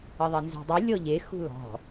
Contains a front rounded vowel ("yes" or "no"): no